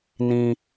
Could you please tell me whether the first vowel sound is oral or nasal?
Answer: nasal